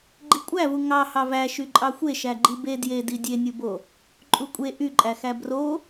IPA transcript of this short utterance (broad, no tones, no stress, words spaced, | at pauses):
ɡ͡ǃikʷʼævu ŋɑhɑ væ ʃyǃʼɑxʷe ʃæɡ͡ǃibe djedi dʲenʲubo | ǃʼukʷʼe ʔyǃʼæxæ bro